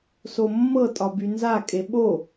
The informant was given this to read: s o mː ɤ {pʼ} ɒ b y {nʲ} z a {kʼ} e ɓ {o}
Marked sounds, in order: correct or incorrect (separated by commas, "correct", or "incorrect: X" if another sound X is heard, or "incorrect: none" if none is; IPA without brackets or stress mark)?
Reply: incorrect: tʼ, incorrect: n, correct, correct